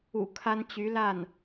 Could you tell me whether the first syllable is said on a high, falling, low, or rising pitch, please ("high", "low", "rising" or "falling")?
low